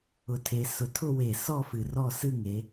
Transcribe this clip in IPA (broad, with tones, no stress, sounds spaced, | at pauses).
ʊ˧˩ tʰ e˨˦ s ʊ˨˦ tʰ ʊ˥˧ w e˧˩ s ɔ˥˧ f ɨ˧˩ r ɔ˥˧ s ɨ˥˧ ŋ e˨˦